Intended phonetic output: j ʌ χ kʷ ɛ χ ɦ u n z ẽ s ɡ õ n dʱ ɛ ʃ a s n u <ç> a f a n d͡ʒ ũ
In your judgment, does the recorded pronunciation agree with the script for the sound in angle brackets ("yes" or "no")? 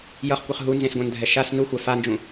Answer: no